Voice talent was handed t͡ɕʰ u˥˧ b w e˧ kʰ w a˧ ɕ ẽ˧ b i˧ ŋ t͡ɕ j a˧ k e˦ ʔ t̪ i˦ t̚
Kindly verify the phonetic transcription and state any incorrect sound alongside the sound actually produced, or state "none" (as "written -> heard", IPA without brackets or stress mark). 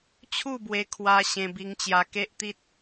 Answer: none